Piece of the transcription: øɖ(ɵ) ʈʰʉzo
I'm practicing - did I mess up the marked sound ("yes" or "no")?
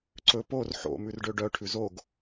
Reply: yes